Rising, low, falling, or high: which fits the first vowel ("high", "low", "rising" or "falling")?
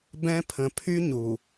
high